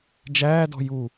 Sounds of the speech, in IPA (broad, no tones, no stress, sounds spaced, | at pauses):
d͡ʒ æː d ɔ̤ j u